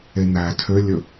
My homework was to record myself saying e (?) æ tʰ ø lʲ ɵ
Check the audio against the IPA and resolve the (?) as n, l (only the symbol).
n